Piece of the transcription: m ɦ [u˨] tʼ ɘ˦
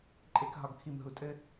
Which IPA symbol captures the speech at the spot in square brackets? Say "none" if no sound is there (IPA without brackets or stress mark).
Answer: u˨